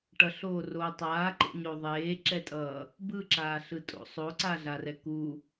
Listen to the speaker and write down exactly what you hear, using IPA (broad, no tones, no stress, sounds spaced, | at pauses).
ʈ ʌ ɬ oː r oː tˤ aː ǃ ḛ ɲ o ðˤ eː ǁ ɛ tʼ ʌː | b ɯ ǁ aː ɬ ɯ tʼ o̰ sˤ o ǀ a ɮ a r ɛ k u